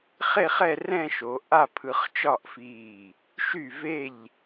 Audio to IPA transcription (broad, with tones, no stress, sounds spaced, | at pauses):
χ e˥˧ χ ɛ˥˧ r ɛ̃˥˧ ʃ o˩˧ ʔ a˥˧ pʰ ɯ˧ χ t͡ʃ ɒ˥˧ ʔ f iː˧˩ | ʃ y˧˩ v e˧˩ ʎ